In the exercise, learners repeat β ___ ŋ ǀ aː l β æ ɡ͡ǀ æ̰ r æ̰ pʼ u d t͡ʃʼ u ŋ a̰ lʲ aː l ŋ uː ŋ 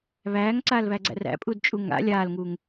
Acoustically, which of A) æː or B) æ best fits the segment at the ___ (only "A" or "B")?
A